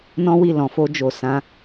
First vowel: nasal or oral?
nasal